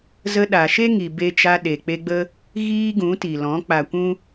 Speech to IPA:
z ə˧ ɗ a˨ ʃ e˦ ŋ i˨ b e˧ t͡ʃ a˧ ɗ e˨ k͡p e˧ ɡ͡b ə˦ | ɣ iː˦ ɡ ũ˨˦ t i˨ l ɔ̃˨˦ k͡p a˨ kʷ ũ˦

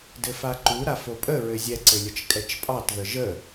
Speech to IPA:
d ɘ f a ǃ u ɾ a f o pʼ ə ɹ ɘ zʲ ɛ ǀ ɘ lʲ ə t͡ʃ kʼ ɛ t͡ʃ pʼ ɑ t ð ə ʒ ə

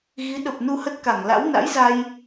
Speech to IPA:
ɣ i˨˦ ɗ ə˨˩ p̚ n u˧ h ə˦˥ t̚ k a˧˩ ŋ l a̰˧˥ w n a̰˧˥ j z a˧ j

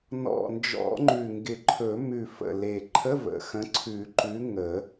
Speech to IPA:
n ɔ̰˨˩ n d͡ʒ ɔ̰˨˩˦ ŋ͡ǃ ʉ˨˩ ŋ ɡ ɪ˨˩ ǃʰ ɵ˨˩˦ m ʉ˨˩ f ə̰˨˩ l e˨˩ ǃʰ ə˧˥˧ v ə̰˨˩ x ə̃˨˥ ǀʰ ʉ˨˩˦ ǃ ʉ˨˥ ŋ ə˨˩˦

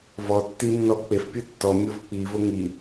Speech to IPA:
v ɔ tː i nː ɔ k͡p e f pʲ ɯ tː ɔ mʲ o v k͡p i v o ŋ i

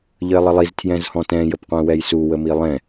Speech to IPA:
ʎ ə ɪ̯ lˠ ə lˠ i z tʰ j ɛ̃ z h ɔ̃ t ɛ̃ j ə p qʷ ɛ̃ w ɛ j s u w ə m i lˠ ɛ̃

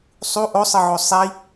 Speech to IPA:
sˤ u ʔ o sˤ ɯ ʕ o sˤ i

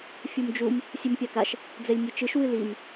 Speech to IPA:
fʲ u m d͡ʒ u m | sʲ ɨ m pʲ a k a ʃ | d͡z ɛ lʲ nʲ ɨ t͡ʃ ɨ ʃ w ɨ l i m

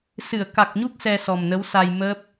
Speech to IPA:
s ɨ˨˩˨ ə̯ k a˨˩ k̚ ɲ u˦˥ k̚ s ɛ˧ s ɔ˨˩ m n ə˧˥ w s a˧ j m əː˦˥ p̚

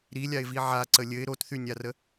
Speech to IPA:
ɾ i lʲ a ɪ̯ v i ʕ a ǀ ə lʲ ɘ ɪ̯ ɾ o t θ y nʲ a r ə

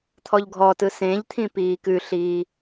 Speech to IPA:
t̪ʰ ɔ ʎ ɡʱ ɔ t ɯ s ẽ ʎ t̪ʰ ĩ p iː k ʉ ɬ iː

